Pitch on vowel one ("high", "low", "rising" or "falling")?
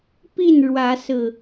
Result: falling